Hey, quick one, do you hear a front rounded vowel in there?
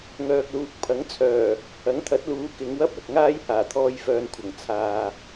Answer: yes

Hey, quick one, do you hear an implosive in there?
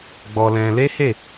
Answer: no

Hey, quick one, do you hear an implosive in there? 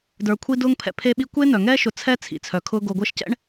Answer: yes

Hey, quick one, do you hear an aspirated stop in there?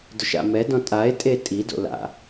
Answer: no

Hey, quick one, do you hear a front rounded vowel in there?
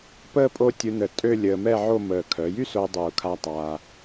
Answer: yes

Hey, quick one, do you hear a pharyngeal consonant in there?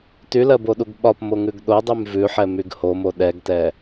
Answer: yes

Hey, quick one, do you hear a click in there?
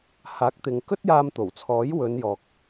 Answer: no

